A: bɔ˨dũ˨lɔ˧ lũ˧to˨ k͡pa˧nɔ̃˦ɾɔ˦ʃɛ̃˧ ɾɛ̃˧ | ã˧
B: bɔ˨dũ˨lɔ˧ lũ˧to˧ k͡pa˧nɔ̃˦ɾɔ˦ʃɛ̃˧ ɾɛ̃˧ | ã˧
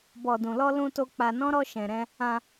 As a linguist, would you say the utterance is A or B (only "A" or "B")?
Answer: B